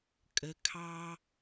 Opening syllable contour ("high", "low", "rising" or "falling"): low